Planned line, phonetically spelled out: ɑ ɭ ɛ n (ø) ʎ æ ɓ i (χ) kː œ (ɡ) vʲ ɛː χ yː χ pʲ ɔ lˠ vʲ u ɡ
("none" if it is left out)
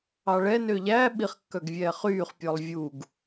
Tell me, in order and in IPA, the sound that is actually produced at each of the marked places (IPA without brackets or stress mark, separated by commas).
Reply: ø, χ, ɡ